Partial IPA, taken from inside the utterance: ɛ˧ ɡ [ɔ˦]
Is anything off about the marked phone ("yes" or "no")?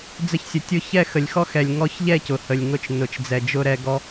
no